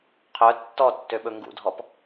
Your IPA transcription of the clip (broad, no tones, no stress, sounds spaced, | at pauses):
qʰ œ tː ɔ tː ø ɓ ɵ ŋ ɡ ṵ dʱ ɔ p